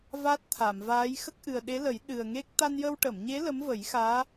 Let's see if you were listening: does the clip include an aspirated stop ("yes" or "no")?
yes